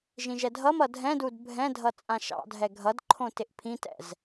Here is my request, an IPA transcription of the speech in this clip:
ʒ ĩ ʒ ɛ dʱ ʌ m ʌ dʱ ɛ̃ d u d bʱ ɛ̃ dʱ ʌ t͡sʼ ã ʃ ɑ̰ dʱ ɛ ɡʱ ʌ d ǃʰ õ t ɪ ʔ pʰ ĩ t ɛ̰ z

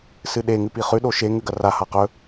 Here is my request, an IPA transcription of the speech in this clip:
s ɨ ɗ e ŋ ʉ p i χ ʉ ɗ o ʃ e ŋ ʉ ɡ ɐ r a h a q ɵ

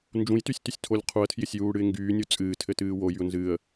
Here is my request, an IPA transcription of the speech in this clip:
n d͡ʒ ũ j t y sʲ t y sʲ tʰ o lʲ qʰ u ə̯ tʰ j ɪ sʲ j uː ɽ ɨ ɪ̯ ŋ ɡ yː nʲ u t͡sʼ ɨː tʰ ɘ t ɨː w o j y ʊ̯ n z ɨː ə̯

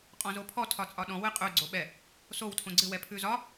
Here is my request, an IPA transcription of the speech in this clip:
qʼ ɔ̃ z o pʰ ɔ tʰ ɒ t͡sʼ ɒ ɗ ɔ̃ w ɨ qʼ ʉ ɡ͡ǀ o ɓ ɛ | s o w tʰ õ ɡ͡ǀ ɨ w ɛ pʰ ʉ z ɒ

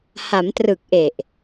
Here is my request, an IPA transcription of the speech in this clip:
h a˩˦ m t r ɯ˨˩ k̚ ʔ e˨˩ ʔ

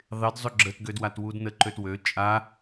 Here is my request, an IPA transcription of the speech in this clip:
ðˤ ɪ d zˤ ø ɡ͡ǁ ə t ɡ ø d w a t w u d n ə ǃ ø t w ø t͡ʃʼ a

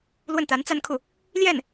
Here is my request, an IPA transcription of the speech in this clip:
l w ə˥˩ n t̪ a˧˥ n t͡s a˥˧ n kʰ u˥˩ | l j ɛ˥˩ n

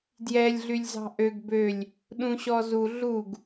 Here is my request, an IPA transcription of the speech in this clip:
d j ɛ lʲ ɮ y lʲ z ɑ̤ ʔ ø ɡ b ø lʲ | ɗ ũ ɕ ɔ z u ɮ u ɡ

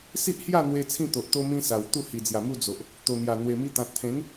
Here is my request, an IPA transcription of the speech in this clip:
s i˦ ʔ h j a˥˧ n̪ w e˧ t͡sʰ ĩ˥˧ t̪ o˨ ʔ t̪ o˦ m ĩ˦ s a˨˩ w t̪ u˥˧ h i˨˩ d͡z j a˨˩ m u˥˧ d͡z o˨ ʔ | t̪ o˨˩ n̪ j a˨˩ n̪ w e˨˩ m i˧ t̪ ã˨ t̚ t̪ʰ ẽ˨˦ n

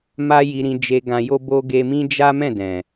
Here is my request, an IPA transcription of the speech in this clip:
m a˦ j i˧ ɾ ĩ˧ d͡ʒ e˧ ɡ ã˧ j o˦ b o˦ ɡ e˧ m ĩ˦ d͡ʒ a˦ m ɛ̃˦˨ d ɛ̃˨

